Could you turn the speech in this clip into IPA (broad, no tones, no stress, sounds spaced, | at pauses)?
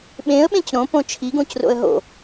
ɓ ẽ ə̯ ɓ ẽ c ɾ õ p õ t͡ʃʰ i ɡ õ c r o̰ ə̯ ɦ o̰